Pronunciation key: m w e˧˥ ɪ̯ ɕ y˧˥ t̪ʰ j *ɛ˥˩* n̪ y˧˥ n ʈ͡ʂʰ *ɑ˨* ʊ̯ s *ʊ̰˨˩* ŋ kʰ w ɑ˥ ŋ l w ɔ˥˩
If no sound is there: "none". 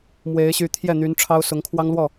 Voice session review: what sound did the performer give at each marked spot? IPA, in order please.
ɛ˥˩, ɑ˥, ʊ˧˥

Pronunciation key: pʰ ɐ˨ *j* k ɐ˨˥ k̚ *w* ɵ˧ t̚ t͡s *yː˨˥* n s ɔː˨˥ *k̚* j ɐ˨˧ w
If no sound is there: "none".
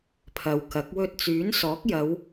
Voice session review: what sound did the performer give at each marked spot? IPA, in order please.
w, w, yː˨˥, k̚

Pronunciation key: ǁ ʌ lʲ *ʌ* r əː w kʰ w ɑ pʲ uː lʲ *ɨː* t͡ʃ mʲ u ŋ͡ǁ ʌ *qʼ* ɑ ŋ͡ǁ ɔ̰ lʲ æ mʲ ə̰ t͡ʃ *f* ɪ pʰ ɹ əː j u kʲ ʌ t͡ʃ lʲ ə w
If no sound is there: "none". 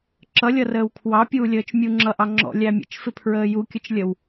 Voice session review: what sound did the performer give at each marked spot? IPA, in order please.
ʌ, əː, ʔ, f

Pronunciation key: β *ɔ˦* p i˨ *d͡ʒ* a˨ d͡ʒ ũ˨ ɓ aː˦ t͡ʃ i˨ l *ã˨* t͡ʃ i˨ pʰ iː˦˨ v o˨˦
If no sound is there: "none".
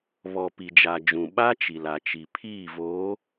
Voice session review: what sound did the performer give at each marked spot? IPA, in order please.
ɔ˨, d͡ʒ, a˨

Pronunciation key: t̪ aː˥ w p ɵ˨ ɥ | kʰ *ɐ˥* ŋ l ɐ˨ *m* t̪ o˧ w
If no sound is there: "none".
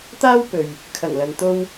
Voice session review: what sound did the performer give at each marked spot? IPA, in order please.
ɐ˨˩, n

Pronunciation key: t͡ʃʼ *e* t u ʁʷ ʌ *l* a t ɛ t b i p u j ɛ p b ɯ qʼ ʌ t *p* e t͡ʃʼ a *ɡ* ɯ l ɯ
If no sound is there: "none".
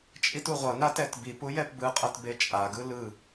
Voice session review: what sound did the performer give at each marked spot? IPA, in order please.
i, n, b, ɡ

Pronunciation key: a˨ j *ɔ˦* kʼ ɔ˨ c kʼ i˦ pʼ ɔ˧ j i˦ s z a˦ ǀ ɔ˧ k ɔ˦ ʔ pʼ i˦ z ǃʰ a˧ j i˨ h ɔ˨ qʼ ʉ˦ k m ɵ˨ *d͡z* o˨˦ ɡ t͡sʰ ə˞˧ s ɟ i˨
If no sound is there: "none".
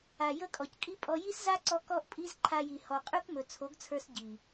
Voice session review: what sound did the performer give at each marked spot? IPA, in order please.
ə˦, t͡sʰ

